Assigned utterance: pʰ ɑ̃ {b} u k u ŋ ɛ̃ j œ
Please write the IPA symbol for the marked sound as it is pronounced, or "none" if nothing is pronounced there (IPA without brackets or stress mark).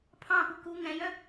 p